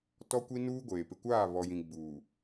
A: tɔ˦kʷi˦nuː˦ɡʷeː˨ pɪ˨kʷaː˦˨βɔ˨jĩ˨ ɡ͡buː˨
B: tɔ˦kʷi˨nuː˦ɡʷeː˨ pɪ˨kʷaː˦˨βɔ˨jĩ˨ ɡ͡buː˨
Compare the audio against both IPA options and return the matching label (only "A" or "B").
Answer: A